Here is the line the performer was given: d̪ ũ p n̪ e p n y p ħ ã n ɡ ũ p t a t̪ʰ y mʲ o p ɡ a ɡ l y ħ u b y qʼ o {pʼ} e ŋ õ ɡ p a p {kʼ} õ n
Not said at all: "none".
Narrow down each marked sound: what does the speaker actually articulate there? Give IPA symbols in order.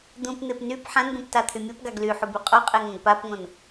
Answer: qʼ, ŋ

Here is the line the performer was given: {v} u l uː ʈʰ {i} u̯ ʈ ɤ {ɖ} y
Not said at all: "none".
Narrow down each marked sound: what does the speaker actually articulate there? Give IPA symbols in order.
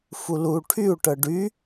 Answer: f, y, ɖ

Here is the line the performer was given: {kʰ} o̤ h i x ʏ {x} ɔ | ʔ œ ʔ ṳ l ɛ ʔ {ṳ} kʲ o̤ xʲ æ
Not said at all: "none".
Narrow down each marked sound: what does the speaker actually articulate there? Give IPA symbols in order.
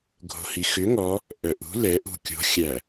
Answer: ɡʱ, ŋ, ṳ

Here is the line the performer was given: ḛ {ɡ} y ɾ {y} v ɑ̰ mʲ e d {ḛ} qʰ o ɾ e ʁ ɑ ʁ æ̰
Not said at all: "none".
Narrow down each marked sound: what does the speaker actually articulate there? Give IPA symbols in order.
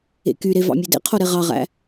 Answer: k, e, ḛ

